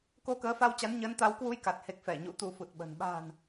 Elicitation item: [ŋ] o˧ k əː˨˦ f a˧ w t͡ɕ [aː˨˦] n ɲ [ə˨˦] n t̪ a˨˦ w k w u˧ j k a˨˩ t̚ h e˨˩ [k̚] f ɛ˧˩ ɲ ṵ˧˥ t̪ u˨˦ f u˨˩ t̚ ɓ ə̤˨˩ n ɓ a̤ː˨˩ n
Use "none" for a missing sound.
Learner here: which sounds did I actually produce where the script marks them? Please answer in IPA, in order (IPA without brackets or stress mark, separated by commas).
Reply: k, a˨˦, ə˨˦, k̚